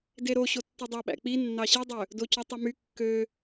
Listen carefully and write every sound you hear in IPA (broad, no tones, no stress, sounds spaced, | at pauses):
d e ɾ o ɕ o tː i dˤ ɑ ɓ æ̰ k͡p i nː ɑ ɕ i dˤ ø | d o c u tˤ y m y kː ø